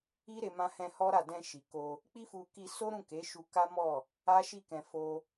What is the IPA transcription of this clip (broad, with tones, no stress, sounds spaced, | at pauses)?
i˦ ɾ e˧ m ã˧ h ɛ̃˧ h ɔ˦ ɾ a˦˨ d ɛ̃˧ ʃ i˨ k o˧ | k͡p i˦ f u˧ k i˧ s o˦ ɾ ũ˦˨ k e˨˦ ʃ u˧ k a˦ m ɔ˦˨ | a˦ ʃ i˦˨ k ɛ̃˧ f o˦